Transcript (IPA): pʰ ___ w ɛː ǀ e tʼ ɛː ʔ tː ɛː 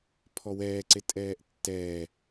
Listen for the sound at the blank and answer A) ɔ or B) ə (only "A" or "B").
A